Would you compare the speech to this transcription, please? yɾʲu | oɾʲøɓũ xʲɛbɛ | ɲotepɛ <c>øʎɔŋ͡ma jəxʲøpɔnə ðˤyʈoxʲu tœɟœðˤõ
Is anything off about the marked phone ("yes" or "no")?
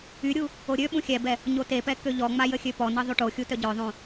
yes